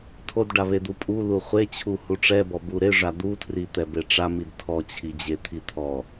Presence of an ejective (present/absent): present